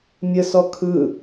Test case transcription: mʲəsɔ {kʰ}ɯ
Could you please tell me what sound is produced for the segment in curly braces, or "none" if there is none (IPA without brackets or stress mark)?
kʰ